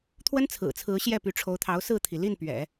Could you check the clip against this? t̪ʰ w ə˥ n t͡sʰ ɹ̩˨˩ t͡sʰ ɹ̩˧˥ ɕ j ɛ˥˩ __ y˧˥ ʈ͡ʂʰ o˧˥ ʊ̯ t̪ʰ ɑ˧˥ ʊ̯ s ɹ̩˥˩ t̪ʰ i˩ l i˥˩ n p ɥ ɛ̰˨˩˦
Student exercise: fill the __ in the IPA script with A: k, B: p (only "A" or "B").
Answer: B